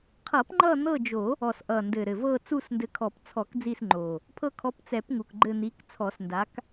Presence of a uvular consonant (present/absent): present